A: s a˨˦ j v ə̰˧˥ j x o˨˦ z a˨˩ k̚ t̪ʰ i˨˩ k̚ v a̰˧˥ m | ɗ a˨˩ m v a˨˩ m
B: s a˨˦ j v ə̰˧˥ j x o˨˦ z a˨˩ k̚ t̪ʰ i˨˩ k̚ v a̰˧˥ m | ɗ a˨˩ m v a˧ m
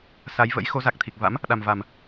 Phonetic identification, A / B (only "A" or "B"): A